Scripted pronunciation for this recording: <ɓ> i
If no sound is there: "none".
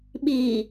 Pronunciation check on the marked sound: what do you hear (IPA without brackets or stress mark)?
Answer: ɓ